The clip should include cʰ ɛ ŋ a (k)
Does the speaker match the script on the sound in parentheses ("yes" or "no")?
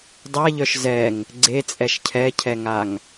no